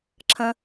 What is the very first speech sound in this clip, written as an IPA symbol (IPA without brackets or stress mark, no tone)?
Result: ǁʰ